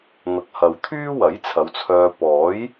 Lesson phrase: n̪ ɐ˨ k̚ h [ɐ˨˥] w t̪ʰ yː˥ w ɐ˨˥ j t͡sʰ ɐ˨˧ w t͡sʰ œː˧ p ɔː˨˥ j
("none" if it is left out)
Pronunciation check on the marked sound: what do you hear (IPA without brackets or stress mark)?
ɐ˨